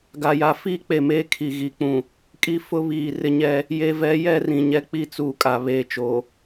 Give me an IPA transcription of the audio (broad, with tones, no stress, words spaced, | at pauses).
ɡa˨ja˨ fiː˦ k͡pe˨meː˦ kʰi˨ ɣi˨k͡pũ˨ | kʼi˨ fʊ˦βiː˨ rɪ˦ɲɛ˦ | je˨vɛ˨˦ jɛ˦rĩ˨ɲɛ˦k͡pi˦ t͡suː˨kʼa˨ βeː˨t͡ʃo˨